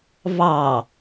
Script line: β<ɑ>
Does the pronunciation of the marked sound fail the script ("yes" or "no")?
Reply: no